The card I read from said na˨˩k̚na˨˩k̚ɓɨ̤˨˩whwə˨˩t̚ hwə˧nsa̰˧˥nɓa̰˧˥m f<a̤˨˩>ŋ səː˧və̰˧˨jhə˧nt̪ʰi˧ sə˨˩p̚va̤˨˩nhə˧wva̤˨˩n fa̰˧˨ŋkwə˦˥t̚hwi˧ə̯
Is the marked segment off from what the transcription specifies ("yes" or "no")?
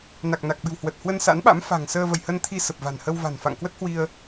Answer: no